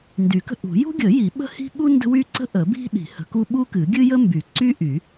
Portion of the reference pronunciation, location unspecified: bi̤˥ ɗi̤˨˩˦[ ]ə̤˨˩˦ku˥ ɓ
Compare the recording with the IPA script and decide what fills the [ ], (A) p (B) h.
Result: B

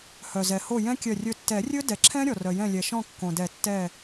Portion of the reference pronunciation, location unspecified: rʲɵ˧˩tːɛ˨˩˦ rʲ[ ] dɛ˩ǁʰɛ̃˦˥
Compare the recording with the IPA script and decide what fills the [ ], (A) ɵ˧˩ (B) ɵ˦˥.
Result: B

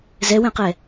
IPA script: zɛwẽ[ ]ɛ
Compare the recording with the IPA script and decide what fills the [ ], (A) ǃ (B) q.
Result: B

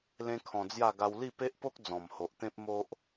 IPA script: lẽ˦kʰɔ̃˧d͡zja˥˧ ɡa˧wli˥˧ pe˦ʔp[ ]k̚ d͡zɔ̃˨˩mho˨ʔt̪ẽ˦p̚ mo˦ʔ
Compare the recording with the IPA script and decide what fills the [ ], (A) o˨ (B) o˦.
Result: B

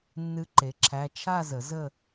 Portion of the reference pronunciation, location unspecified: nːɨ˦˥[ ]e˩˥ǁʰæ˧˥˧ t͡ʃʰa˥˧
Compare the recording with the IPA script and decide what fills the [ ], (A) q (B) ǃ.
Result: B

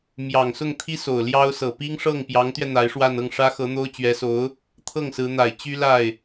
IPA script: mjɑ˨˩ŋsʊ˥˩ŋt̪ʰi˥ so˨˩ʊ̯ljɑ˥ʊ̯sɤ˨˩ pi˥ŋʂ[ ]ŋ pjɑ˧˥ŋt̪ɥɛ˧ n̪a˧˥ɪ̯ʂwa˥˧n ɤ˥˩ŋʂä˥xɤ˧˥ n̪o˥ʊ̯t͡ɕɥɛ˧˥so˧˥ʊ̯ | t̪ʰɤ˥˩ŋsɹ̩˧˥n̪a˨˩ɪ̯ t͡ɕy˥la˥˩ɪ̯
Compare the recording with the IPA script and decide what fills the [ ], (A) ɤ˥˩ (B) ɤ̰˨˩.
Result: A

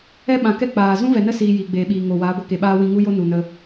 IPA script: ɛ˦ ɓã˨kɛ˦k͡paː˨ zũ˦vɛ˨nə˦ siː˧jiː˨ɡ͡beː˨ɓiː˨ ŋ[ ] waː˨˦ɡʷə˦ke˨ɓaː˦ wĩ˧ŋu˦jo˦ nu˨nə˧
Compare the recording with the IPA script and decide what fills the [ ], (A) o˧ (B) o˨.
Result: B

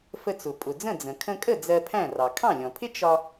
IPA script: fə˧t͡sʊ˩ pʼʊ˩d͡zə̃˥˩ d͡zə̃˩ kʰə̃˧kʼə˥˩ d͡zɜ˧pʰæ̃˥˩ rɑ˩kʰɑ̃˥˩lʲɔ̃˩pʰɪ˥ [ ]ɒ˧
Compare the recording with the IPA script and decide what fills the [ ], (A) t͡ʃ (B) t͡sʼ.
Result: A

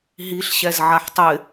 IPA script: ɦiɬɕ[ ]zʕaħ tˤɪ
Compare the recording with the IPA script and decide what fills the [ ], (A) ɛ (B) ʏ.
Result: A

